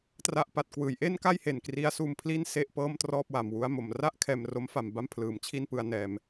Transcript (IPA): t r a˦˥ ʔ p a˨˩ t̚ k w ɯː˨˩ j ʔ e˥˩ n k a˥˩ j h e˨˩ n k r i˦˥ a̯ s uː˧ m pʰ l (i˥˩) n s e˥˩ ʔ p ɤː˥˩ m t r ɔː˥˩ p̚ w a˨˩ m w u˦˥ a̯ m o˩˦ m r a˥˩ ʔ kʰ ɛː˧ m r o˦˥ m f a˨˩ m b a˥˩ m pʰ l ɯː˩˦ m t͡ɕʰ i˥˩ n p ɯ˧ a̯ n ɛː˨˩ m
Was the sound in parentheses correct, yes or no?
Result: yes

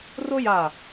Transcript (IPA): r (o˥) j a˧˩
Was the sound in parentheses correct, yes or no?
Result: yes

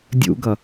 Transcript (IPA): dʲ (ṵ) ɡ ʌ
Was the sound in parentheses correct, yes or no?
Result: yes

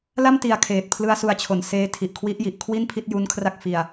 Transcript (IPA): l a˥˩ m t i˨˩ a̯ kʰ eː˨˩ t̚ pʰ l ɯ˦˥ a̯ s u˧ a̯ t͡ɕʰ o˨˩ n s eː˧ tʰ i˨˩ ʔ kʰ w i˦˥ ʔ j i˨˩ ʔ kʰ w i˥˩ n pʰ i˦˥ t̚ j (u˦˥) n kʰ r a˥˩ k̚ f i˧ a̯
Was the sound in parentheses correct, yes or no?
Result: yes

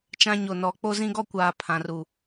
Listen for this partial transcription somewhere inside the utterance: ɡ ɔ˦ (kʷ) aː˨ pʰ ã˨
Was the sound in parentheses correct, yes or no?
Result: yes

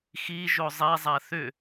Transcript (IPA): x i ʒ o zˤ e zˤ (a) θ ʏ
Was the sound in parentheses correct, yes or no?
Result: yes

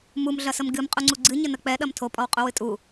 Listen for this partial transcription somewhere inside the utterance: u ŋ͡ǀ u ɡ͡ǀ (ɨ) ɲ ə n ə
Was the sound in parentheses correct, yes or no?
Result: yes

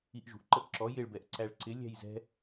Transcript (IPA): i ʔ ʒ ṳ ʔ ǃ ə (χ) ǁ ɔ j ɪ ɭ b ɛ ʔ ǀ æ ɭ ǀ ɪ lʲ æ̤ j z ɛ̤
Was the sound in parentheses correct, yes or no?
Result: no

